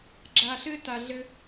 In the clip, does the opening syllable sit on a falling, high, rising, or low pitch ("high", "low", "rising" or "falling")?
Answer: low